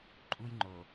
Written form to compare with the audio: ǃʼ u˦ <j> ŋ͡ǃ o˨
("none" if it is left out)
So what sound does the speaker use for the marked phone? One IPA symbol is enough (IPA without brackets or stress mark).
j